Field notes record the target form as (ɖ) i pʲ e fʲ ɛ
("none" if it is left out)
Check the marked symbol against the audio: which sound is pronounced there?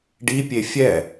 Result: ɖ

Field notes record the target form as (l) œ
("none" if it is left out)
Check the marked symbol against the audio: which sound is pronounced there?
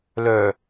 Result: l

